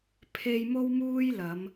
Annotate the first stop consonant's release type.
aspirated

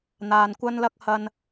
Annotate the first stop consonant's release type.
plain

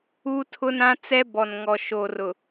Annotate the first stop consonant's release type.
aspirated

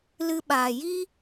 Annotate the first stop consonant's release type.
implosive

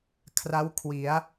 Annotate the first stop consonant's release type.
aspirated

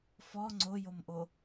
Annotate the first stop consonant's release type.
click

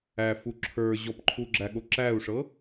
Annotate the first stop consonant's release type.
click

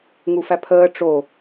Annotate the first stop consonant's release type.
aspirated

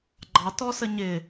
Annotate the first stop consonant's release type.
click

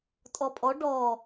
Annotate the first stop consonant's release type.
ejective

